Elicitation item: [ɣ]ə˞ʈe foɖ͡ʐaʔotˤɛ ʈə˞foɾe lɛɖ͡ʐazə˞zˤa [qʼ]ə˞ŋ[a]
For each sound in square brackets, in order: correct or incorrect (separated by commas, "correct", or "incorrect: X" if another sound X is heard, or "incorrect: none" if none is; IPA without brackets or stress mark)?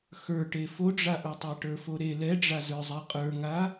incorrect: x, correct, correct